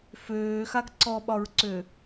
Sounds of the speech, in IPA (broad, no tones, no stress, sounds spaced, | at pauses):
f øː x a ɡ ǀ ɔ ɓ ɒ ɹ ǀ ø